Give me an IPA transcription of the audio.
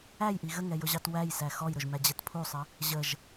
æ j ʔ i ɣ ə ŋ ɛ j ʊ ʑ ɑ t w æ j s æ x ɔ j ɾ ʊ ʒ m æ d͡ʑ ɛ t pʰ u sˤ ə | ʑ ə ʒ

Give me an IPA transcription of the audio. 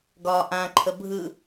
ɡ ɒː ʔ ã ǃʰ ə bʱ ɯ

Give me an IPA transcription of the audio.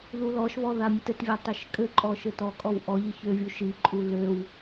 ð u l ɔ ʃ β ɔ ð a mʲ ɘ t ɘ t vʲ a tˤ ɘ ʃ kʼ ɘ ǃʼ ɔ ʃ ɘ t ɔ kʼ ɔ w ʔ ɔ ʎ i ç ø vʲ u ʃ i ǃʼ u l ø w

